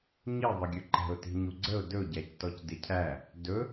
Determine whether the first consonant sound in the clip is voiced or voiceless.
voiced